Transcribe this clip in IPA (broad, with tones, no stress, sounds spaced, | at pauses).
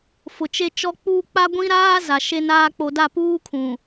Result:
f ʊ˨ t͡ʃ e˦ t͡ʃ ɔ˦ k͡p uː˦ k͡p a˦ ɡʷ ĩ˦ ɾ aː˦ z a˨ ʃ e˦ n aː˦ k͡p o˨ d a˦˨ p uː˦ kʰ ũ˨